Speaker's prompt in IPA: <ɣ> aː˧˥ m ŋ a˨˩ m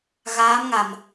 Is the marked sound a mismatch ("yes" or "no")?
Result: no